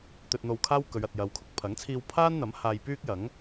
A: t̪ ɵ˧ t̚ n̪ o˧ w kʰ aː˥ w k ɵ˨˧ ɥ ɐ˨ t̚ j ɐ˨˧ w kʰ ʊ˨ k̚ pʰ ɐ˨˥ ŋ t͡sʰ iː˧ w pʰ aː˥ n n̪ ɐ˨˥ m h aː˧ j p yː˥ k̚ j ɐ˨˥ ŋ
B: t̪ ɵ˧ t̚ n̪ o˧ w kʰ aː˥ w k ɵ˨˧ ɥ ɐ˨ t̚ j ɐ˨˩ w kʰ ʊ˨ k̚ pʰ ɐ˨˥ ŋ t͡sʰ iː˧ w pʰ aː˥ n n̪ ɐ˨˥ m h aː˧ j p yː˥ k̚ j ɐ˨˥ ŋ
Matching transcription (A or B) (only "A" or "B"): A